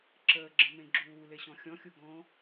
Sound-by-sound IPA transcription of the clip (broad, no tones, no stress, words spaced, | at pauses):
ǁəːɡ͡ǁə̃ mẽɡ͡ǁuːle ɕɔ̃xʲɔ̃xʲu ɡɔ̃